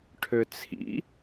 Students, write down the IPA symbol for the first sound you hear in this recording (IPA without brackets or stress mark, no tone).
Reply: ʈʰ